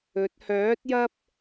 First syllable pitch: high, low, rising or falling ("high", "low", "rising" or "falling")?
rising